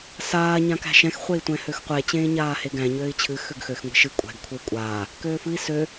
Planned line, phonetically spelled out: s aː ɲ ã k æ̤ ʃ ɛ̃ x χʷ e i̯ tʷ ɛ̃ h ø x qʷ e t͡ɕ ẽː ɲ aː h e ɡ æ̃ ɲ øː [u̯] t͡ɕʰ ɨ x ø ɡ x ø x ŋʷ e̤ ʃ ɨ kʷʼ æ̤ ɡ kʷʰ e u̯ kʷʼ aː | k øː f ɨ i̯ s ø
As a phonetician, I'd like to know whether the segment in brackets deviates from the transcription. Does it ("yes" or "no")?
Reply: yes